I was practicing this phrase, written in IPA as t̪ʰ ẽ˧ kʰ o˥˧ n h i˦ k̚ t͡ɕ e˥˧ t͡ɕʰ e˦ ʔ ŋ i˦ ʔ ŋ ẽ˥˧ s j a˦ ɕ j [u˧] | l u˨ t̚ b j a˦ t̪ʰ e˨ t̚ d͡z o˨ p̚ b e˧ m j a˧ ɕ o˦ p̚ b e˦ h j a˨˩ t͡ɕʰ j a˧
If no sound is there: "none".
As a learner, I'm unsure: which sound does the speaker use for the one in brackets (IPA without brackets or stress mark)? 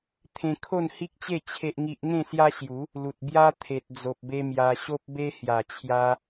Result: u˨˦